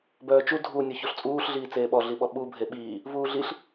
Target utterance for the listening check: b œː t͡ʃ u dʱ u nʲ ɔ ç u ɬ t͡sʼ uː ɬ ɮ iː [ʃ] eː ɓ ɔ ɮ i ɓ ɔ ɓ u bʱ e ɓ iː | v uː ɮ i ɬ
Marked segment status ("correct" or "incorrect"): incorrect